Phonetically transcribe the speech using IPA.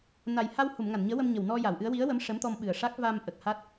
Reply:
na˨˩j ha˧w hu˨˩˨mŋa˨˩˨nɲəː˧˥wə˧m ɲə˨˩wnɔ˧ ja˨˩˨wʔɨ˧˥ə̯ wi˧˥ə̯ wə˧˥m ʂə˧˥mt̪ɔ˧m ɓɨ˨˩ə̯ʂa˦˥k̚ va˧mʔə˨˩k̚ ha˦˥t̚

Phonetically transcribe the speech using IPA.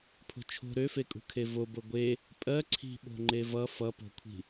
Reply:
pʰo̤t͡ʃʰo̤ ɾøfekʼṳkʰe vobo ɡʷe | pʼɜ ǀʰi̤ ɓo̤ŋ͡ǃevʌ fʌpo̤kʷʰi̤

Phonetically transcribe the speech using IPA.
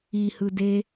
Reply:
i hɯde

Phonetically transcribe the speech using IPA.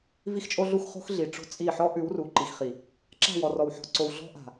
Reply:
vi˦xt͡ʃʼo˦ɮu˦x χo̤˦xɮi˨ʈ͡ʂo̤˦ t͡sʼi˦˨ ħɔ˦ ʔʉ˨˦wru˨ǃi˨xχi˨ | ǁa̤˦˨wɔ˨rɔ˨w ħɔ̤˨ǀo˨w ɮɔ̤˦ʔa̤˨

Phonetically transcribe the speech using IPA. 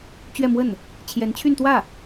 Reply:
t͡ɕɥɛ˥˧mwə˥˩n | t͡ɕʰjɛ˧˥nt͡ɕʰy˥˧nt̪wä˥˩

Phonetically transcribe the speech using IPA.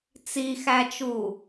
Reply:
t͡sixæt͡ʃu

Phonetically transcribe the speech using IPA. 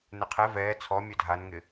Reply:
nɛqʰɛ vɛː t͡sʰɔ mʲœdʱanŋɪ

